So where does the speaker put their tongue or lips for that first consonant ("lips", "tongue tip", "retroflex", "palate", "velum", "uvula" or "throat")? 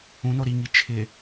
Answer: tongue tip